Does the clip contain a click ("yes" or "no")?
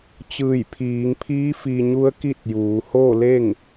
no